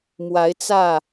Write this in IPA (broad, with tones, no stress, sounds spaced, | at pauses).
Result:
m w a˨˦ ɪ̯ t͡s ä˥˨